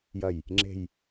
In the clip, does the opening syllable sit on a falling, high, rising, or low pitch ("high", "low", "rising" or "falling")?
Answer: falling